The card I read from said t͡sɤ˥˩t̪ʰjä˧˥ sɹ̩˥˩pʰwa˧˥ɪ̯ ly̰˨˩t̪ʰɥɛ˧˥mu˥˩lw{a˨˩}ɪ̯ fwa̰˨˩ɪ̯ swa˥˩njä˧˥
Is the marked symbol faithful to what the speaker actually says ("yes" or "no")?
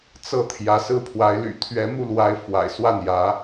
no